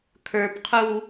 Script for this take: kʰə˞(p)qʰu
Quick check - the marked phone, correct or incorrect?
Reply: correct